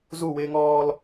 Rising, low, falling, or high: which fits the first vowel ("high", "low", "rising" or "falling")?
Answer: falling